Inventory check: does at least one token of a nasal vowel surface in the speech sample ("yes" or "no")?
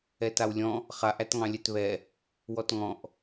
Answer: yes